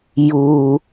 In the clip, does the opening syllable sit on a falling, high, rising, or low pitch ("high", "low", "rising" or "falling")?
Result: low